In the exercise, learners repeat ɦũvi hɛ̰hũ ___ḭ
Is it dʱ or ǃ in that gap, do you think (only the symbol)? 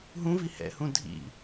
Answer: dʱ